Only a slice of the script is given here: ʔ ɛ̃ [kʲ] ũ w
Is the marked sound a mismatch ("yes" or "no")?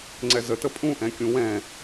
no